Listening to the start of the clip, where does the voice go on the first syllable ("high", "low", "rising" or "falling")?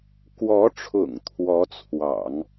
rising